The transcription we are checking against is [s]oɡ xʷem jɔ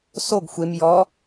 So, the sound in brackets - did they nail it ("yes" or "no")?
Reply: yes